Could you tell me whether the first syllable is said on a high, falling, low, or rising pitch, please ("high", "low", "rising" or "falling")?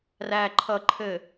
low